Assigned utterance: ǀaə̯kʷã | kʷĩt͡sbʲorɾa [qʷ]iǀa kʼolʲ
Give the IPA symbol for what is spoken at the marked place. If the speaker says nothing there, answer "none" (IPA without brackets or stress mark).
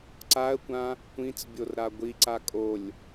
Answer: ɡʷ